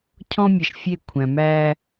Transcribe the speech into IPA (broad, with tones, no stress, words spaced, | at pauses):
cʰɔ̃˦mʲɐ˨ʃfʲe˦˨ kʷʰæ̃˨mæ˦